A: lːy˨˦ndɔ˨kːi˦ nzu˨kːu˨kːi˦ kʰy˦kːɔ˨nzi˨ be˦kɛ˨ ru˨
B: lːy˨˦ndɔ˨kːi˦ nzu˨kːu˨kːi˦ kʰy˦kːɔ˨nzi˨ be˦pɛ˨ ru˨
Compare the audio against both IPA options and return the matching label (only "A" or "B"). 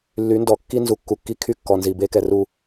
A